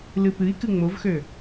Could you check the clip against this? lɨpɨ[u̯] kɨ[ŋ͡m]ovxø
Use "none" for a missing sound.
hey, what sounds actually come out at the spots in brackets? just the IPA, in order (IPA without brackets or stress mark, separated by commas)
i̯, ŋ͡m